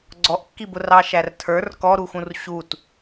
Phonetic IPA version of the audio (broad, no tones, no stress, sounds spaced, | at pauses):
ɡ͡ǀ ɔ ʔ kː i b ʊ r ɑ ʃ æ r tʰ ə˞ r k ɔ ɾ u x ũ r ɕ u t